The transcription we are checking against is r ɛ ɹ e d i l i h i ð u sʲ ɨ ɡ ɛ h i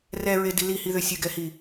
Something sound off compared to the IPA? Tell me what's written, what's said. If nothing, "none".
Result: u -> ʏ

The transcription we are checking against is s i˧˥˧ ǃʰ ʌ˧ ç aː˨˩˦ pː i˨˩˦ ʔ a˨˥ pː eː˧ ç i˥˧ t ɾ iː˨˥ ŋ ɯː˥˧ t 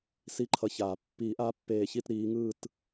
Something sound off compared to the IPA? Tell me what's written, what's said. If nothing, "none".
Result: none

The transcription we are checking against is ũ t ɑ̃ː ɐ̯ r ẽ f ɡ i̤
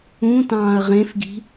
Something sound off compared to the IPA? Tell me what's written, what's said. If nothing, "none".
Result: r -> ʁ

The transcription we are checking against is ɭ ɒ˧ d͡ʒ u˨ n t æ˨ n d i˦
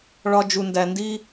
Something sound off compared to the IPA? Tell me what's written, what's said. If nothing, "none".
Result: t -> d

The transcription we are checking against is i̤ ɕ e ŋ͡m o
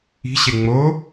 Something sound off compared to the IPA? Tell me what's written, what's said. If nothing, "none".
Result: none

